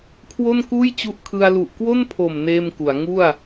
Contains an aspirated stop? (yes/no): yes